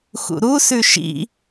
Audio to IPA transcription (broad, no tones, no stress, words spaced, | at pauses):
xṵɾu sʉʃḭ